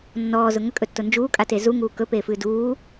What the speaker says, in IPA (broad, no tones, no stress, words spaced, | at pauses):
nːɔːzʊ ŋəkʼɵtːʊ nd͡ʒuːkʼate zuŋuː kɵpeːfɨː duː